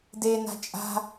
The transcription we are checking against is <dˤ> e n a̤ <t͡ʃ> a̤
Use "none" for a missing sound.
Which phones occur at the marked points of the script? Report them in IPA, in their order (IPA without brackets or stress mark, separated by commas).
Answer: d, t͡ʃʼ